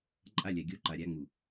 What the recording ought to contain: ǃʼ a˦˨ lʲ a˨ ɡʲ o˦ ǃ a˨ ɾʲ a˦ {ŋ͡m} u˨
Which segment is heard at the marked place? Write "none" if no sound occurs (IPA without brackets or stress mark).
ŋ͡m